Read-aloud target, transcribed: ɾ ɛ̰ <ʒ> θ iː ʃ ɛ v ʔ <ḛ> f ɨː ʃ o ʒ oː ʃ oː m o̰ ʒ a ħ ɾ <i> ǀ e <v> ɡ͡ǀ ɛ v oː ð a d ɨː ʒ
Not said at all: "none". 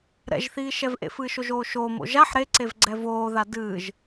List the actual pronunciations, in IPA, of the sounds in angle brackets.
ʒ, ḛ, e, v

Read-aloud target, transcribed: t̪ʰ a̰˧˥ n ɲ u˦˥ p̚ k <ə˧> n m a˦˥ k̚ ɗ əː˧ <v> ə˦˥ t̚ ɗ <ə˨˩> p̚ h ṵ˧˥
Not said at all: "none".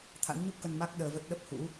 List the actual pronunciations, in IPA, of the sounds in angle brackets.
ə˧, v, ə˦˥

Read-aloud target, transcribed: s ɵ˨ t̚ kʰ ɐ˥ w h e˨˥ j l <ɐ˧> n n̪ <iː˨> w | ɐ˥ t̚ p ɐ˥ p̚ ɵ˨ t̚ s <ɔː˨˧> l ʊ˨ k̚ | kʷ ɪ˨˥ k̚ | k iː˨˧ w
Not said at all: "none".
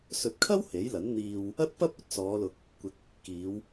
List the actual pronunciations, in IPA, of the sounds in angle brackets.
ɐ˨˥, iː˨, ɔː˨˧

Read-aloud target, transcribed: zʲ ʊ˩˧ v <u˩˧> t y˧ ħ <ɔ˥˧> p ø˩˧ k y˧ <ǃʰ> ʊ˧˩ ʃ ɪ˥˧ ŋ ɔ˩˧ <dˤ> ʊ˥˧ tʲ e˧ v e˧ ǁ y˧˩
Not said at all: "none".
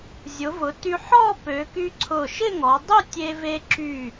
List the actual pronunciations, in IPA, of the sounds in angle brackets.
ʊ˩˧, ɔ˥˧, ǀʰ, dˤ

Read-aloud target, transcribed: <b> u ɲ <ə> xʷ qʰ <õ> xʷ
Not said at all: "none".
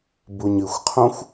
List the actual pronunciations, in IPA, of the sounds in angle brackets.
b, ɨ, õ

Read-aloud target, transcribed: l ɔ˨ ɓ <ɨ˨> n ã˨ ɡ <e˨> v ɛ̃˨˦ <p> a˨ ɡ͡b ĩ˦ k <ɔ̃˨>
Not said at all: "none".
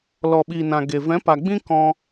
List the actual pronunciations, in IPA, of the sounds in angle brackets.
i˨, e˨, p, ɔ̃˦

